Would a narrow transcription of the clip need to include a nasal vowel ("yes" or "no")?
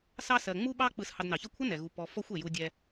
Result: no